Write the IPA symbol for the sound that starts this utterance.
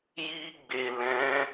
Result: j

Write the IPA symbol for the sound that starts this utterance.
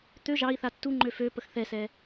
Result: t̪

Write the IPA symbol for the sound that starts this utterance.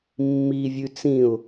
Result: mː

